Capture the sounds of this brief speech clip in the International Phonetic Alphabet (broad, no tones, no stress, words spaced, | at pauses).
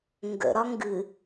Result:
ŋɡə̰ɾɒ ŋɡɨ